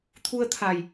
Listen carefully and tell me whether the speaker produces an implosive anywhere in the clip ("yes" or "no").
no